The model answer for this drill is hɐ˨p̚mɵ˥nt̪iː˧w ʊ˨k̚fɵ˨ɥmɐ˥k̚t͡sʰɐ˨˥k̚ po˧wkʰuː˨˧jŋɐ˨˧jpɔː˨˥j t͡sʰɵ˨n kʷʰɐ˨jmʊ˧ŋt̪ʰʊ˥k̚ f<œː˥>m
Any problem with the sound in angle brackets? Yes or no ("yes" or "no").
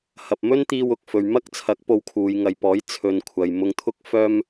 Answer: no